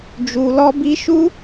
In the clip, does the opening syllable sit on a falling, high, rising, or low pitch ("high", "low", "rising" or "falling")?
low